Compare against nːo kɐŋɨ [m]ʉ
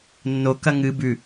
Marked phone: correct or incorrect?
incorrect